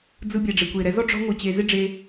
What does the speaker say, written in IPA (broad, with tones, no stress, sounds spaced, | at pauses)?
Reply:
d͡z ɯ˧ bʲ ɛ˨ ɖ͡ʐ e˨ kʷ e˨ ɾ ɛ˧ z ɔ˦ ɖ͡ʐ ɔ̤˧ ŋʷ ɯ˨ t͡ɕ e˧ z ɪ˦ ɖ͡ʐ e˧